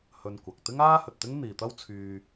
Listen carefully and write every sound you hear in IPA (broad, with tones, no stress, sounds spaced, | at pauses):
h ɵ˧ n kʷ ɐ˨ k̚ t̪ ɪ˥ ŋ aː˥ h ɵ˨ t̚ t̪ ɪ˥ ŋ n̪ iː˨ t̪ ɐ˥ w t͡sʰ yː˧